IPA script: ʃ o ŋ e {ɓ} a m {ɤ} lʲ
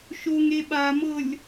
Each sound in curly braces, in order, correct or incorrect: correct, correct

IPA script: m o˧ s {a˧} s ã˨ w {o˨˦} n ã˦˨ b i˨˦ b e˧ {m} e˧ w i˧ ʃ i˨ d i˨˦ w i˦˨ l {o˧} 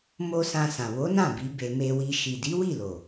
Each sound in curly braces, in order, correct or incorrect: incorrect: ã˧, correct, correct, incorrect: o˨

